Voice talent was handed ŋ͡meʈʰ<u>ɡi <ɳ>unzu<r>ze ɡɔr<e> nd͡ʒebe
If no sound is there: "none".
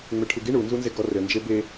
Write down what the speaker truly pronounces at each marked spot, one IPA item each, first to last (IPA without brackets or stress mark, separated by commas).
u, ɳ, n, ɘ